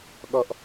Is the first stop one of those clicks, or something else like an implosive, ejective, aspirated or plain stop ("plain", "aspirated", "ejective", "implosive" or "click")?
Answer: implosive